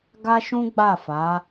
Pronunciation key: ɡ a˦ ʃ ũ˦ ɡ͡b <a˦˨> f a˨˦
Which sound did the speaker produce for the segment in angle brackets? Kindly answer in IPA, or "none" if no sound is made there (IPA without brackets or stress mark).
a˦˨